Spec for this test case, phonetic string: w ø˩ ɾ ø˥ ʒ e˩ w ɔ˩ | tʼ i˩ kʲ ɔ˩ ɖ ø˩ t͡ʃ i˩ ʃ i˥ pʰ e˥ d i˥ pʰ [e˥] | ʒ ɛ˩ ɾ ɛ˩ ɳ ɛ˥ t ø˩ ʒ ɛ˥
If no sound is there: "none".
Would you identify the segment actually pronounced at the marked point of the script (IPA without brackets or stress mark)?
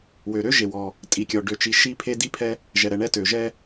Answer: ɛ˥